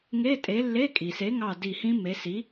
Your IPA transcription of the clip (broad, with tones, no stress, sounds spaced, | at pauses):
ŋ e˧˥˧ tʼ e˨˥ lː e˧˥˧ kʼ i˨ s e˨˥ ŋ ɑ˦˨ d i˦˨ h ĩ˦˥ m e˨˥ s i˨˥